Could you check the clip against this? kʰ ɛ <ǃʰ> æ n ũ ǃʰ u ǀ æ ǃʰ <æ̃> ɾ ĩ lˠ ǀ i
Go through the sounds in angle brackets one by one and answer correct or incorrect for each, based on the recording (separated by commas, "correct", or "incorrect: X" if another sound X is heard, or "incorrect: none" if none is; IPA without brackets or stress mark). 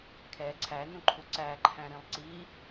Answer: incorrect: ǀʰ, correct